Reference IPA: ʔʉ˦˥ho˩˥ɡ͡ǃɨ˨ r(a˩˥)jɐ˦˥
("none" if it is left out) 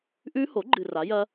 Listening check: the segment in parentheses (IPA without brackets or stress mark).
a˩˥